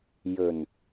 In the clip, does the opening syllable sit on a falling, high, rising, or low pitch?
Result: low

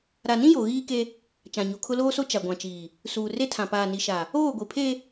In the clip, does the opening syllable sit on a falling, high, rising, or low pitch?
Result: low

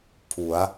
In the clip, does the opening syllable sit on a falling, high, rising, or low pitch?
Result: rising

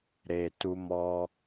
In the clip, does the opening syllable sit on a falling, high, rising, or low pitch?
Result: low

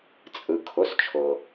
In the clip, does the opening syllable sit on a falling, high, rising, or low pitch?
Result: low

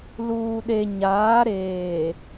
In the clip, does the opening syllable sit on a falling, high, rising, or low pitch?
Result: low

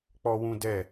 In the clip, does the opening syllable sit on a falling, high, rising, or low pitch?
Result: high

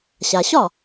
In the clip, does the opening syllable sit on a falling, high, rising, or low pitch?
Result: low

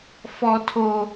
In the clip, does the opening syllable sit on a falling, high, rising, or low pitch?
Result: high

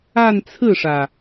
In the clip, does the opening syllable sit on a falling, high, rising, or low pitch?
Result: falling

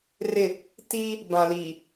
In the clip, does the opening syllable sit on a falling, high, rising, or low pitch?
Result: falling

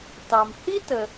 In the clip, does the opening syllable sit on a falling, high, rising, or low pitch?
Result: low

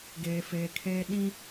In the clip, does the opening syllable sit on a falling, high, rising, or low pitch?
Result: low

